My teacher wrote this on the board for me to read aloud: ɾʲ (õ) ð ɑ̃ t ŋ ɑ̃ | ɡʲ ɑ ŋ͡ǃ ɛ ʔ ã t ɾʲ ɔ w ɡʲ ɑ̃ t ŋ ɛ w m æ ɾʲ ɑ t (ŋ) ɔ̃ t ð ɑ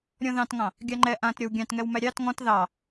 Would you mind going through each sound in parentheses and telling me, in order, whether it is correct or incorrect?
incorrect: ɔ̃, correct

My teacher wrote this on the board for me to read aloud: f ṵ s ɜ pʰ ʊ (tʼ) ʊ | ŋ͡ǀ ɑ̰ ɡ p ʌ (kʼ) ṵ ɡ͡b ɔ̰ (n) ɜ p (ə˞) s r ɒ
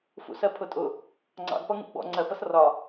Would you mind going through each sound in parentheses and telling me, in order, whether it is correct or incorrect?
correct, incorrect: ŋ, incorrect: ŋ͡ǀ, incorrect: ʌ

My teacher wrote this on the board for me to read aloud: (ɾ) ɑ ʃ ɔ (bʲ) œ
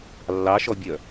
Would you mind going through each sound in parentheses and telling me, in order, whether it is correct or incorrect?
incorrect: lː, correct

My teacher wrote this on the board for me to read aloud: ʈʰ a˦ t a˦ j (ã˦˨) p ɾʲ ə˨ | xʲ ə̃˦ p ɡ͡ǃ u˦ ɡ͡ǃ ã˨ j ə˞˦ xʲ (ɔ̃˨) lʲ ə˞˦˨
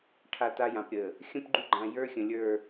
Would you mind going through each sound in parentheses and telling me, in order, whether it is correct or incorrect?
incorrect: ã˨, incorrect: ə̃˨

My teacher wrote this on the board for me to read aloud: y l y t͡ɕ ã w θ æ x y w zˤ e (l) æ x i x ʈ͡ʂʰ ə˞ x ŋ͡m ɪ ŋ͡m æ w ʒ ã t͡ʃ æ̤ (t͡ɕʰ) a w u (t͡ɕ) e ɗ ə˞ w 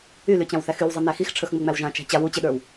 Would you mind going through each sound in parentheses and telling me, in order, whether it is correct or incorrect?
incorrect: n, incorrect: t͡ɕ, correct

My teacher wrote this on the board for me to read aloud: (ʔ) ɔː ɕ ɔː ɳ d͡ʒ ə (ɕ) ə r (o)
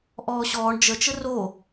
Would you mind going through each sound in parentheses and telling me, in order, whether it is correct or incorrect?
correct, incorrect: t͡ʃ, correct

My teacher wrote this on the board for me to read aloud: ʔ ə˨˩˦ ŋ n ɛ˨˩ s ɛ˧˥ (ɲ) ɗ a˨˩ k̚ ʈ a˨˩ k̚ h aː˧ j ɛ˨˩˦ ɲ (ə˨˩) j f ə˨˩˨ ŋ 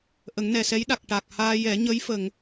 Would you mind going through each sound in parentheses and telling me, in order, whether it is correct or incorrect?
incorrect: j, incorrect: ə˧˥

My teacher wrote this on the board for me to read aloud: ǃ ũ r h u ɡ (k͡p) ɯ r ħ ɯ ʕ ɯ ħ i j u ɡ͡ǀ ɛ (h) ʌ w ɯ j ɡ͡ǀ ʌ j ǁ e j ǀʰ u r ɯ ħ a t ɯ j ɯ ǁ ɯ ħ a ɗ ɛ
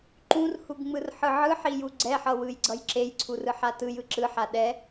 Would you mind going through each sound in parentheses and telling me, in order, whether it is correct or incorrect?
incorrect: ŋ͡m, incorrect: ħ

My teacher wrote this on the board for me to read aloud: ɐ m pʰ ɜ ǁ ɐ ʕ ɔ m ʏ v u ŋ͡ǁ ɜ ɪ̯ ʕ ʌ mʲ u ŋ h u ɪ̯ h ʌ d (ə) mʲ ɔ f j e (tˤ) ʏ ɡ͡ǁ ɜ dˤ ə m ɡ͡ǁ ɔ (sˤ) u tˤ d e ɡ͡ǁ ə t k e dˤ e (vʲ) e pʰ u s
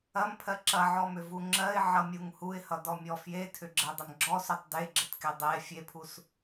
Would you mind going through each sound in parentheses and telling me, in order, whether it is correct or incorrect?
incorrect: ɔ, incorrect: tʰ, incorrect: s, incorrect: fʲ

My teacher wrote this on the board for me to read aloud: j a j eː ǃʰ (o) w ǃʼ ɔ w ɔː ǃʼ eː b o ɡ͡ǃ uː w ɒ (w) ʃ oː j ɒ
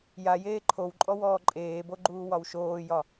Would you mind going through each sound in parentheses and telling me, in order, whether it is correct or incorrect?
correct, correct

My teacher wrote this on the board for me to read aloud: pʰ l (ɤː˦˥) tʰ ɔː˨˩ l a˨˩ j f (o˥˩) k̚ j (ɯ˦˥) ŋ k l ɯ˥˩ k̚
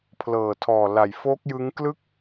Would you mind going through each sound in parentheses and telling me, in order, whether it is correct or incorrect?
incorrect: ɤː˨˩, incorrect: o˦˥, correct

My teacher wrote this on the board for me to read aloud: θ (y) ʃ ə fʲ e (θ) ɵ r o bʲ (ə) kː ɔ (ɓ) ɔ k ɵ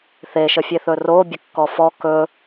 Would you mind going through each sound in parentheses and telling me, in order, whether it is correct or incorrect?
incorrect: e, correct, correct, incorrect: f

